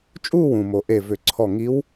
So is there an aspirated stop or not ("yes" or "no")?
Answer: yes